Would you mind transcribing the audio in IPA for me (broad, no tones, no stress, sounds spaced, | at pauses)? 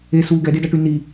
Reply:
e s uː ɡ ɛ d e d a ʈ y n i